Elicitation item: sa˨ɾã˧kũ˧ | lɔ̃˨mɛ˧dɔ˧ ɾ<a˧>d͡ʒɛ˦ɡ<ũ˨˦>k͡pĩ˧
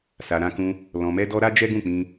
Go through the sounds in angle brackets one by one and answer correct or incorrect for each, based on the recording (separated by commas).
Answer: incorrect, incorrect